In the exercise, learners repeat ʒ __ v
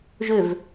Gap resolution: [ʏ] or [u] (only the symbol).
ʏ